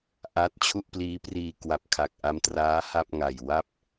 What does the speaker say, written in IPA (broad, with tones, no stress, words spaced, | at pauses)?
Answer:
ʔaː˦˥t̚t͡ɕʰu˥˩ʔpliː˦˥ priː˧ kwa˨˩p̚kʰa˨˩k̚ʔa˧mtraː˦˥ ha˥˩p̚ŋa˨˩j wa˥˩p̚